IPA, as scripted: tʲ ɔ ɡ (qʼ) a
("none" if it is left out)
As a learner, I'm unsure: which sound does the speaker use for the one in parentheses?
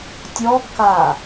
k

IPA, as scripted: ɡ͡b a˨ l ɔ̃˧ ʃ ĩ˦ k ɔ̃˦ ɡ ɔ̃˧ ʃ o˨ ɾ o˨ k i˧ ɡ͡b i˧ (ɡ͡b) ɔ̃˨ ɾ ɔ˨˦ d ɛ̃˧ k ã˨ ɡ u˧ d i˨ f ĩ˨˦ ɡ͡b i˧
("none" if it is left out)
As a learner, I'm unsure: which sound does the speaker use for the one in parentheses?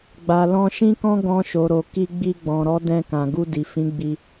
ɡ͡b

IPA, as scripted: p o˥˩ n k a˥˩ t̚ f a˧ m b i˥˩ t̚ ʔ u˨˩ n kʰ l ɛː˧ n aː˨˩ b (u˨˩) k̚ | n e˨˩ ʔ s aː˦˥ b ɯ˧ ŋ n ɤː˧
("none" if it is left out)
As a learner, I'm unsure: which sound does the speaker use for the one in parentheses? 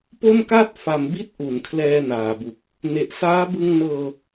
u˨˩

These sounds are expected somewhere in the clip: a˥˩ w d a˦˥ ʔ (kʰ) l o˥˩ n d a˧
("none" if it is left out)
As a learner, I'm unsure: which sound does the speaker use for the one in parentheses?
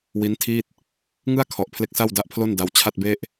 pʰ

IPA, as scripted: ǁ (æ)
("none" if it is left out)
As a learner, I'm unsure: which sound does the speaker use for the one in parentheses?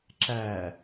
æ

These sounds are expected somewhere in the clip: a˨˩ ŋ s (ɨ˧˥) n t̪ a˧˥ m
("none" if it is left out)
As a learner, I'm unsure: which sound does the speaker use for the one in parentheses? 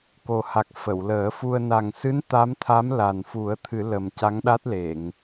ɨ˧˥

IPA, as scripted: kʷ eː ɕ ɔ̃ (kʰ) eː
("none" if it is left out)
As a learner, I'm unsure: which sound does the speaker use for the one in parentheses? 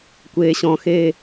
x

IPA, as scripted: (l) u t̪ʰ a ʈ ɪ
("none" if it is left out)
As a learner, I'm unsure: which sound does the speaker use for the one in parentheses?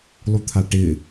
lˠ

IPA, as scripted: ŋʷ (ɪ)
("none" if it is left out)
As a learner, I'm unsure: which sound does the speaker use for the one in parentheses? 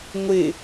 ɪ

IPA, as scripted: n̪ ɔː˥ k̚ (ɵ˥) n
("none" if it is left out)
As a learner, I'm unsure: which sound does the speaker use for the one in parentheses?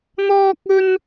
ɵ˥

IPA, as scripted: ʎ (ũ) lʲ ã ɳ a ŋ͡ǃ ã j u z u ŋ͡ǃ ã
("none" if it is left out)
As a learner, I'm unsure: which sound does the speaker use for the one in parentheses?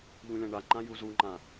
ũ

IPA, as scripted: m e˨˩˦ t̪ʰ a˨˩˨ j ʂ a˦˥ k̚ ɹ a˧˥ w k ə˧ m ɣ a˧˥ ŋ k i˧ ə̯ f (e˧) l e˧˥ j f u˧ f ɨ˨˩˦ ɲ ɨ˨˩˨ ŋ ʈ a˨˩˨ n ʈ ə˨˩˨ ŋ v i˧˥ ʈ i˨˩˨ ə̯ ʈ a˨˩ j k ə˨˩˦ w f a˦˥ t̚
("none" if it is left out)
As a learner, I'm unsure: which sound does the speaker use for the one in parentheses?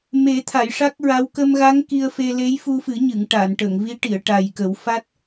e˧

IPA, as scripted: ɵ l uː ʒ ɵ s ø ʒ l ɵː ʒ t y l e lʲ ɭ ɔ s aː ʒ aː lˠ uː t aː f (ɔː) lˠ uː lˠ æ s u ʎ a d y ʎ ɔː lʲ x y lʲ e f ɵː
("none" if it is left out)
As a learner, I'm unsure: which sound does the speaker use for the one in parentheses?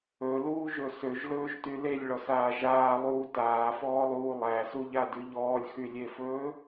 ɔː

